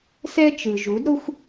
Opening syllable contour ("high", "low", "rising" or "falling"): high